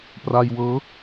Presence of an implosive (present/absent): absent